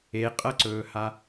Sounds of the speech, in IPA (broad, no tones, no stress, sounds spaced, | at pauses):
e qʼ ɐ ǀ ɵː h a